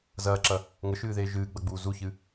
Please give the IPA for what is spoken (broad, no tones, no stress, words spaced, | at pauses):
zɐːǁɐ | ŋəʃɨːðeː ʒɨːɡ͡bɐɡ͡buː zuçɨ